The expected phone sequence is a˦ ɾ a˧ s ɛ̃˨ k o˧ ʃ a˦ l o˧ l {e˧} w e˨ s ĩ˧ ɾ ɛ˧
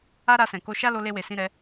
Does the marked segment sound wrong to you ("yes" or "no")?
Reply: no